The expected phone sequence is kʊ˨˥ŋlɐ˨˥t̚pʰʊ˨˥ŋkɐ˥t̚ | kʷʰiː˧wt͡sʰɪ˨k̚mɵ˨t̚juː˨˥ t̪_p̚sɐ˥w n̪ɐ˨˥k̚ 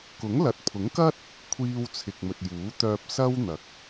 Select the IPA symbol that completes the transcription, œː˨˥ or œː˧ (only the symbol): œː˧